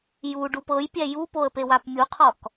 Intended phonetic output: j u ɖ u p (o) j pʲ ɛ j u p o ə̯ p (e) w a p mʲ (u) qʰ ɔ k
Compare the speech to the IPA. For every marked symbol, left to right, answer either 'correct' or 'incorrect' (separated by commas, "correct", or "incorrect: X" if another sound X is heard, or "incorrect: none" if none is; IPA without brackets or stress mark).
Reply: incorrect: ɤ, correct, correct